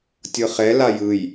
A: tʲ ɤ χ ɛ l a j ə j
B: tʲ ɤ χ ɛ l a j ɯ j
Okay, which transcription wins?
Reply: B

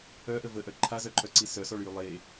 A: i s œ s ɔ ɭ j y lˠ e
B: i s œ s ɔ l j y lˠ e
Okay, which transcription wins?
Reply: A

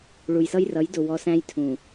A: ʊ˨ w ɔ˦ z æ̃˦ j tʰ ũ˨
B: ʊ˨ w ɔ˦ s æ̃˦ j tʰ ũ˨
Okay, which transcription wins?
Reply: B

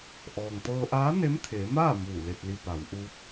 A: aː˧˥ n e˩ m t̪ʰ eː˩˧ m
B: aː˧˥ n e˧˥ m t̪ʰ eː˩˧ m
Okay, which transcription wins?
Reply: B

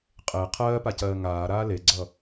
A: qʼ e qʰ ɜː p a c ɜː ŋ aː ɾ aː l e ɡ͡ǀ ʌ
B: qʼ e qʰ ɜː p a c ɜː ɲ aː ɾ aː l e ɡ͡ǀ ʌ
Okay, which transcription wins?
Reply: A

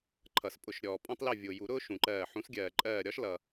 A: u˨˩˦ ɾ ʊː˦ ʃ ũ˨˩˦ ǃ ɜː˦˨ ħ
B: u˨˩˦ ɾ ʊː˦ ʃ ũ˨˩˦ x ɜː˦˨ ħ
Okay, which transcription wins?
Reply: A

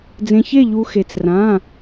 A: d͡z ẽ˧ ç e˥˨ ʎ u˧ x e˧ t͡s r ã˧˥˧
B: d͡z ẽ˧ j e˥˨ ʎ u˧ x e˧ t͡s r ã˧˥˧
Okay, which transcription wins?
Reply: A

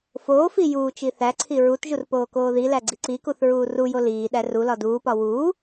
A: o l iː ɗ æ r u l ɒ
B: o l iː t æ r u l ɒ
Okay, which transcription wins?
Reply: A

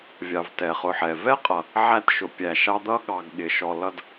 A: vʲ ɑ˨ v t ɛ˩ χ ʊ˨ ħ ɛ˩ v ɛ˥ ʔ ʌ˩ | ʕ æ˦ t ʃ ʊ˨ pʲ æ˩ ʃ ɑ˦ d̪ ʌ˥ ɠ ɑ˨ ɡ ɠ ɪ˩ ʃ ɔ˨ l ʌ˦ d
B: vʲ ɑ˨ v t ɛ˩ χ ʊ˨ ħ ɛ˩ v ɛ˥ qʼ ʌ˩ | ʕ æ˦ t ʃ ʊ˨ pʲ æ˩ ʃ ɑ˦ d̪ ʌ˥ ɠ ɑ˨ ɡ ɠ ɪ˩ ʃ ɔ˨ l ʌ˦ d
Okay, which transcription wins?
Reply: B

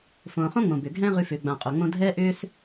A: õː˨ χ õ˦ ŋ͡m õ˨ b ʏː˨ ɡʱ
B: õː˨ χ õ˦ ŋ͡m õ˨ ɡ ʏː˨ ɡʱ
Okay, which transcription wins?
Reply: A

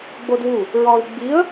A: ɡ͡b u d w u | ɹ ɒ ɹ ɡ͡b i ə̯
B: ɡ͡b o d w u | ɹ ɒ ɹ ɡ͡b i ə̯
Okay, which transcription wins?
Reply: B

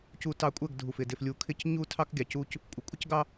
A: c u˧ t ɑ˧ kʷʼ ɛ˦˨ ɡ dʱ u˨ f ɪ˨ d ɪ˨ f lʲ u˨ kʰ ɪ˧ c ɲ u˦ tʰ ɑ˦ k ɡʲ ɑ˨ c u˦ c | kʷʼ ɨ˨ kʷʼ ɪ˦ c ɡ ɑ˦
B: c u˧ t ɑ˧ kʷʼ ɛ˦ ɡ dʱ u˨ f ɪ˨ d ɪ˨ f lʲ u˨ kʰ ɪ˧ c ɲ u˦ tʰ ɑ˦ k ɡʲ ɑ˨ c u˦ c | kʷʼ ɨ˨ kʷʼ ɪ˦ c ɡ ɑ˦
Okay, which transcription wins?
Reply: A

